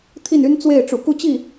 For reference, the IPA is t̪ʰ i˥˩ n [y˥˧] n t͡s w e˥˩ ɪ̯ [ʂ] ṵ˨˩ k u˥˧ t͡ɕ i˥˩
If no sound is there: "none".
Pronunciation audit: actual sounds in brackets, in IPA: y˥, ʈ͡ʂ

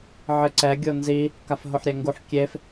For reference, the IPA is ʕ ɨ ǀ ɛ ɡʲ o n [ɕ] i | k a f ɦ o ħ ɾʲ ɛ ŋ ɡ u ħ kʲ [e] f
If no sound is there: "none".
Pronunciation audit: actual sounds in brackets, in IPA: z, e

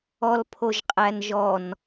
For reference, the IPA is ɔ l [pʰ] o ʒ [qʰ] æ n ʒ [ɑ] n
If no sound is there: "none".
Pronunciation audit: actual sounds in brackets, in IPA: pʰ, qʼ, ɔ

